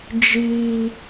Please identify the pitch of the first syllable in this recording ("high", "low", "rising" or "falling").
high